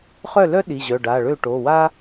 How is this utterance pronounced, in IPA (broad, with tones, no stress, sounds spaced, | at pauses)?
χ œ˥˩ l œ˥ ɗ i˩˧˩ ʑ œ˩˧˩ ɖ a˩˧˩ ɭ ø˥˩ ʈ o˩˧˩ w a˥